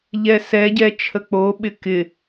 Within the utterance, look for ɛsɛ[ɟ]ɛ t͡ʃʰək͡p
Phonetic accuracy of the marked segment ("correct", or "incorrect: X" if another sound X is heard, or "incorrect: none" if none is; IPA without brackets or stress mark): correct